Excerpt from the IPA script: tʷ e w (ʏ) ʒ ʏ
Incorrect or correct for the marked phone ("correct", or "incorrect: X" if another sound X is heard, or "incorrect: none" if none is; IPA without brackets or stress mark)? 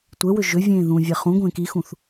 correct